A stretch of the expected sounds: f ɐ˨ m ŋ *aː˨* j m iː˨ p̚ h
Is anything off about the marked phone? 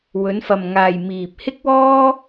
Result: no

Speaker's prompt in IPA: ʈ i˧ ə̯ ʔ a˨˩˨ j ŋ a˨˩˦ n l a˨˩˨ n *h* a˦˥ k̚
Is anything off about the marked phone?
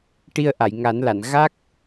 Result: yes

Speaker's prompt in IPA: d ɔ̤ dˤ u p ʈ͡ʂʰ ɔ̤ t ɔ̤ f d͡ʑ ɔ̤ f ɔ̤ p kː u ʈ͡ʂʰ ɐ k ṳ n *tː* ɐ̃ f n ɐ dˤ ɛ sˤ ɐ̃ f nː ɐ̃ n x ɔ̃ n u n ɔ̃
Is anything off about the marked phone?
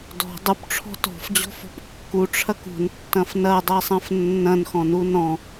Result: no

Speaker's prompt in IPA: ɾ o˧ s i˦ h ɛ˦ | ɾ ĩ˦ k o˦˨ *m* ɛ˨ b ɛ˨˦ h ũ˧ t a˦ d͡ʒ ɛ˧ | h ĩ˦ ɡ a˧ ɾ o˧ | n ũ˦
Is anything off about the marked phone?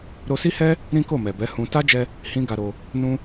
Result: no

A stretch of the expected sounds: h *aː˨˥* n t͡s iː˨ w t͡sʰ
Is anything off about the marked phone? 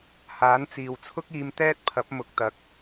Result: no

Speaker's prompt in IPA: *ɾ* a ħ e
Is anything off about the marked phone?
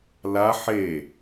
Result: yes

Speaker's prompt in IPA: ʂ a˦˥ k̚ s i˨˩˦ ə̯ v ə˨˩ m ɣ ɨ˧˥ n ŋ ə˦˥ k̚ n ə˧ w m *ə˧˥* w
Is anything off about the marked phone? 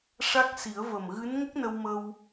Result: yes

